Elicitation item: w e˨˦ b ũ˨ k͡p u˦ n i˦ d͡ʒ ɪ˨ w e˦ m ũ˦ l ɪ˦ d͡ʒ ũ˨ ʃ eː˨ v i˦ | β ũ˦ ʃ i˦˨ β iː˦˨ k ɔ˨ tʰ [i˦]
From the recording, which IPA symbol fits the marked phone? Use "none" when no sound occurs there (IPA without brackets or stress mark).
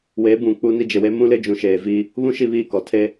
e˦